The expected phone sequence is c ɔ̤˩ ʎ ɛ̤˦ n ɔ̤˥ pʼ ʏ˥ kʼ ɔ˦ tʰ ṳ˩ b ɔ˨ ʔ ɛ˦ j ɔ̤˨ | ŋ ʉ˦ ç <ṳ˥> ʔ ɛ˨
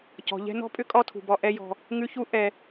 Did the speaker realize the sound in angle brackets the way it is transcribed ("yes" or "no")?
no